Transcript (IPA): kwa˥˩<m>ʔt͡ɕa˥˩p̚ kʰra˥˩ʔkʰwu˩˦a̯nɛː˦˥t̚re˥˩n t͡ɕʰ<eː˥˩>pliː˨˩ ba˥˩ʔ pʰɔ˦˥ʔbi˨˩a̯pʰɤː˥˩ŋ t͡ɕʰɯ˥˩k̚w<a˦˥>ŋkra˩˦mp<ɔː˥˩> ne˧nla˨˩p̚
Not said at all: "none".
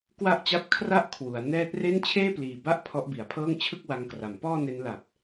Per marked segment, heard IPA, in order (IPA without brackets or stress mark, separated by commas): none, eː˥˩, a˧, ɔː˥˩